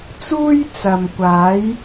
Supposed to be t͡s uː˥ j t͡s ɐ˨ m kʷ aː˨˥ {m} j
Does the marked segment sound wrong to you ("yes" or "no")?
yes